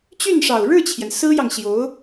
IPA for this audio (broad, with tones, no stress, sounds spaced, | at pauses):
t͡ɕ y˥˩ n ʂ ɑ˨˩ ʊ̯ ɻ ɻ̩˥˩ t͡ɕʰ j ɛ˩ n s ɹ̩˥ j ɑ˨ ŋ ɕ j o˧˥ ʊ̯